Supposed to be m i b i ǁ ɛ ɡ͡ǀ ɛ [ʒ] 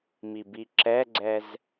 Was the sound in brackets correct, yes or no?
no